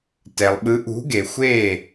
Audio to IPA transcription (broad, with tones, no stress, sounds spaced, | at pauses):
t ɛ˨ lˠ ɓ ɯ˨˥ ʔ ṳ˨˥ ɡ e˨ xʷ e˥˨